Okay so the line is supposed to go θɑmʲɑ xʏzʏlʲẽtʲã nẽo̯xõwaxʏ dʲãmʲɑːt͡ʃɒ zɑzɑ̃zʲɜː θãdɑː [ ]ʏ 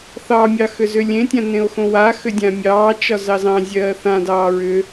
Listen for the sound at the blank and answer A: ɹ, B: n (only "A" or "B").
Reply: A